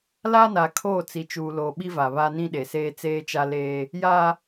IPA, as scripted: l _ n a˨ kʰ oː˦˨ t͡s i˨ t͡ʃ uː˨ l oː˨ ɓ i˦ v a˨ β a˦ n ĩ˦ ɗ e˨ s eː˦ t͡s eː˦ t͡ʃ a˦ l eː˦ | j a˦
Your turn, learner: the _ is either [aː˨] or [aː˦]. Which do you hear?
aː˦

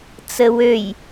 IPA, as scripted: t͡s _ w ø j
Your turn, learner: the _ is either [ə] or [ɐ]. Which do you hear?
ə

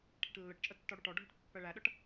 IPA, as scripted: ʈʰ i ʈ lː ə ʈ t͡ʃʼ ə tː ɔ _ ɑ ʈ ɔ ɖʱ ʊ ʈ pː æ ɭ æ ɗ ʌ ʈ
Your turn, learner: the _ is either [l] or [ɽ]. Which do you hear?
ɽ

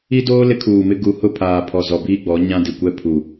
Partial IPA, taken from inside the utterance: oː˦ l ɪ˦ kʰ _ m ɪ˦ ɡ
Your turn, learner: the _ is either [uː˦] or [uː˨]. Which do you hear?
uː˨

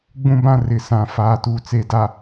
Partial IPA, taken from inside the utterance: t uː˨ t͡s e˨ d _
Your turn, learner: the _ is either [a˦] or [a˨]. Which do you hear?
a˨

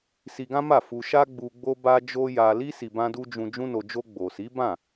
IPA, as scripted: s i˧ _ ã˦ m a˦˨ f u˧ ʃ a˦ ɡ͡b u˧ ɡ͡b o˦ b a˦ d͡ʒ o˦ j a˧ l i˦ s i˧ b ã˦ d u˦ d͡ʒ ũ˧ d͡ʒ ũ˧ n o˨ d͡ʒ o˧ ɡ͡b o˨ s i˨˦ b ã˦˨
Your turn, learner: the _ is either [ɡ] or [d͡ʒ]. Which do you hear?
ɡ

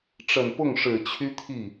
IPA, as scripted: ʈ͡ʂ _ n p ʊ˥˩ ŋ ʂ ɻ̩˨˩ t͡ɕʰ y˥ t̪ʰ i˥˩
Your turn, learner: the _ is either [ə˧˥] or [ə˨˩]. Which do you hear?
ə˨˩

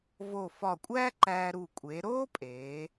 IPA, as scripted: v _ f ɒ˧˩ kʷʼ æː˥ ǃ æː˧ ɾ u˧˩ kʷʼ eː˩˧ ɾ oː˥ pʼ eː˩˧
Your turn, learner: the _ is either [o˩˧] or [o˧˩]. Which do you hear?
o˧˩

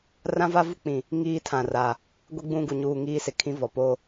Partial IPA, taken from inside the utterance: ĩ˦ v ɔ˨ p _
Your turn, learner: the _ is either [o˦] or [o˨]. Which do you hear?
o˦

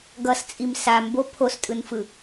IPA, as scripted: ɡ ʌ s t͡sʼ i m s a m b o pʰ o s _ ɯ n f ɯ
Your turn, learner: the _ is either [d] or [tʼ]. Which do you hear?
tʼ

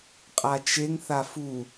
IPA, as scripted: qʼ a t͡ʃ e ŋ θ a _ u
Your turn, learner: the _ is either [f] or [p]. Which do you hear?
f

